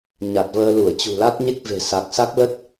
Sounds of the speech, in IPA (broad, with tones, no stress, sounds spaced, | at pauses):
ɲ a˨˩ t̚ v əː˧ l u˧˩ ə̯ t͡ɕ ṳ˨˩ l a˦˥ t̚ ɲ e˦˥ k̚ v e̤˨˩ s a˨˩ k̚ s a˦˥ k̚ l ə˦˥ t̚